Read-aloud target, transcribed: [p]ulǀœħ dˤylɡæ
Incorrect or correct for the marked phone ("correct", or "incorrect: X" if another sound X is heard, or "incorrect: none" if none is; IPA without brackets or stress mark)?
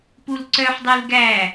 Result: correct